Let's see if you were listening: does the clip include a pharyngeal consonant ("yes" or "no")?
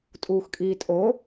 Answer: no